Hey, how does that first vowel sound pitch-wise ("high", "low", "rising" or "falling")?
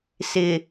low